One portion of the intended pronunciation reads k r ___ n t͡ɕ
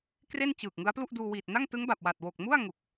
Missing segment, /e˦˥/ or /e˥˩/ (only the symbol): e˥˩